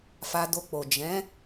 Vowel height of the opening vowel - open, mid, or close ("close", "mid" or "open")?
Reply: open